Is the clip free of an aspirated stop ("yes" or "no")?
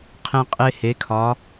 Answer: no